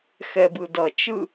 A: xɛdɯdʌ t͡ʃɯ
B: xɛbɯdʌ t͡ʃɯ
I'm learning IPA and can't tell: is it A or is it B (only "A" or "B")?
B